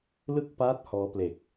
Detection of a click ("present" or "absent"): absent